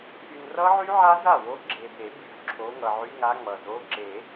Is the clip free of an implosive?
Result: yes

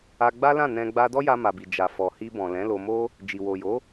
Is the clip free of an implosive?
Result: yes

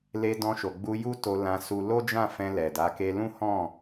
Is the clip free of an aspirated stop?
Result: yes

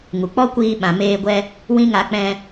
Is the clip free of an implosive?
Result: no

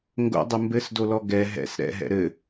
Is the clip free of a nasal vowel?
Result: yes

